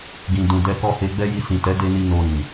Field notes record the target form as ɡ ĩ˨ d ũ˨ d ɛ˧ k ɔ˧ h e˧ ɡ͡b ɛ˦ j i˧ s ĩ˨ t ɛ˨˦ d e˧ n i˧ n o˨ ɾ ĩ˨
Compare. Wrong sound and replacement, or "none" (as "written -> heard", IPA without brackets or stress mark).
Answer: none